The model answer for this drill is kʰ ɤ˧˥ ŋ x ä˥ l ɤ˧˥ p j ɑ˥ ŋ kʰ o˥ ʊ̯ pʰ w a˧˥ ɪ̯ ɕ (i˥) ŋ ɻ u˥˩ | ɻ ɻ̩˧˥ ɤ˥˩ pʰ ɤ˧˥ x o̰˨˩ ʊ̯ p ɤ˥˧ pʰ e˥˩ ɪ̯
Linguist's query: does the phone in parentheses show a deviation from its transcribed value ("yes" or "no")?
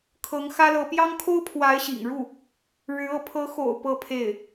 yes